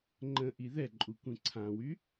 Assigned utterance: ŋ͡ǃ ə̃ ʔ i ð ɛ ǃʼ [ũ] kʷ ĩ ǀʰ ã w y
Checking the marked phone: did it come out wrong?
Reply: yes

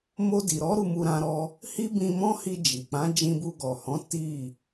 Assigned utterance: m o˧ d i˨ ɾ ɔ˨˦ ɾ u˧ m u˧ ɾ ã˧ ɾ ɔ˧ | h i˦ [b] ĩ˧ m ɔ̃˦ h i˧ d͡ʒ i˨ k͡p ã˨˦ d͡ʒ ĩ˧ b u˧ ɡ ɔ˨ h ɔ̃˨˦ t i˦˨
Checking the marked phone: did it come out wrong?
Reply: no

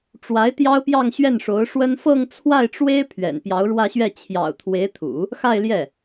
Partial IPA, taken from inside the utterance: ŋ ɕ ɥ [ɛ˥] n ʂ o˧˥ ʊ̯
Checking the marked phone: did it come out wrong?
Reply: yes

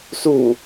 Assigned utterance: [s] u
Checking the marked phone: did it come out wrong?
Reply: no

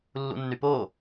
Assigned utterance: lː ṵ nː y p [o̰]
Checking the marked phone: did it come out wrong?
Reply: yes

